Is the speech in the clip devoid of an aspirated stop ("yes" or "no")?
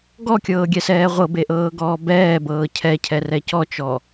no